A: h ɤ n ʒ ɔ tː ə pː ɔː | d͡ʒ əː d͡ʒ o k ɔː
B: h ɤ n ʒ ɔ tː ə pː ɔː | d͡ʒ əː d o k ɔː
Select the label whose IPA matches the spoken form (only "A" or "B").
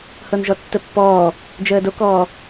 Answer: B